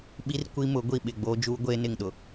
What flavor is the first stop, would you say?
implosive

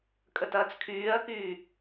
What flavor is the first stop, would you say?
ejective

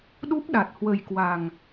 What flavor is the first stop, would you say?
implosive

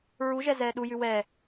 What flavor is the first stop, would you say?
implosive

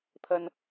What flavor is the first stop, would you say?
aspirated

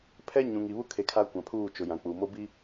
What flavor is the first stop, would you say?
aspirated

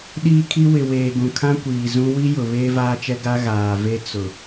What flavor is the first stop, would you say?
implosive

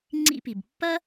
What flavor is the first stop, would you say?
click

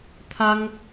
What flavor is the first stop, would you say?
aspirated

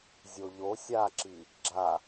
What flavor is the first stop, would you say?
click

